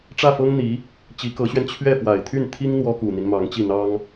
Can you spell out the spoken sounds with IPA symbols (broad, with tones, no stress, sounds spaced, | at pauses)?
ʈ͡ʂ ä˥˩ f ɤ˥ ŋ n̪ i˧˥ | t͡ɕ i˧˥ k ɤ˧˥ ɕ ɥ ɛ˧ n t͡ɕʰ ɥ ɛ˥˩ f w a˨˩ ɪ̯ t̪ʰ y˥˩ n t̪ʰ i˥ ŋ n̪ w ɔ˥ k u˨˩ n̪ i˦ n m ɑ˧˥ ŋ t͡ɕ i˥˩ n̪ ɑ˥ ŋ